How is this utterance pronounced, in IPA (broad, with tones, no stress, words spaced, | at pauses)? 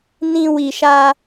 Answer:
nĩ˦ wi˧ʃa˦